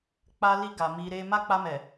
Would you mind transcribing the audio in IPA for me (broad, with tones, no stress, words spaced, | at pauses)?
k͡pa˧li˧ ɡa˨ mi˧ɾe˦ ma˦k͡pa˧mɛ˨